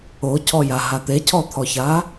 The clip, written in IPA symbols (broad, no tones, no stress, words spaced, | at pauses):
ocʰɔjaɦa t̪ecʰɔt̪ʰɔça